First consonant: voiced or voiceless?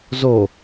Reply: voiced